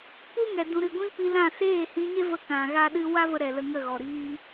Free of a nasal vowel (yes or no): no